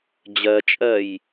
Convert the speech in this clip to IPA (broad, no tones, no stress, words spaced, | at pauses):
d͡ʑɜt͡ʃʼɜj